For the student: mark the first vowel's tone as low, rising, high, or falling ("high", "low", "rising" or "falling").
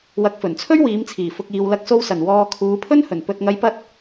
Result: rising